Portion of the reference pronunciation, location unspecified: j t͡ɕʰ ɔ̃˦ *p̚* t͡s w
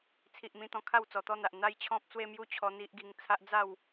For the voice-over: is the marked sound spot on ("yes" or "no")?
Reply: yes